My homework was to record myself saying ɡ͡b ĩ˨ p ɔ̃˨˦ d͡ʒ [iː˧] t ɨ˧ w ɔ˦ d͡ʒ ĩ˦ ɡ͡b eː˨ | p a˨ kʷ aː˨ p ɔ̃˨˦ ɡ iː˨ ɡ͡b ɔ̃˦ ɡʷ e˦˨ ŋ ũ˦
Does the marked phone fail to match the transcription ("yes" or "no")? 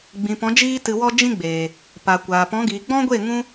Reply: yes